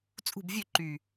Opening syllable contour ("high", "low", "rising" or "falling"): falling